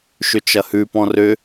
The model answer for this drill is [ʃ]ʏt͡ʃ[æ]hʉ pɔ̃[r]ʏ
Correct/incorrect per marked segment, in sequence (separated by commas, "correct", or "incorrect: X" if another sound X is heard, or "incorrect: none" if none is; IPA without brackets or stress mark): correct, incorrect: ɐ, correct